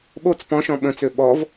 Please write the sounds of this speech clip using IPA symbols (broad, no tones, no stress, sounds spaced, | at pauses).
ɓ o t͡s p ɔ̃ ʃ ɔ̃ ɓ ə̃ t͡s ø ɓ ɔ v